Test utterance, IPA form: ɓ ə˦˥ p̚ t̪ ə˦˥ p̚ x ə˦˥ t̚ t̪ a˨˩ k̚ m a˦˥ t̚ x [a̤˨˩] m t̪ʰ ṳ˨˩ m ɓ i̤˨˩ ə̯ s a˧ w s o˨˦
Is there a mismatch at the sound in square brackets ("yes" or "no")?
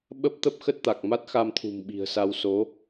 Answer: yes